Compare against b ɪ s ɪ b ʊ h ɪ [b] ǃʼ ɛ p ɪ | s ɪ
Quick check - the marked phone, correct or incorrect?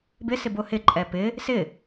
incorrect